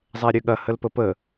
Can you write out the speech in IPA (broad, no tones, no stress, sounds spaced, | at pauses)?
zˤ ɛ ɾʲ ø ɠ ɐ h ə l p ə p ə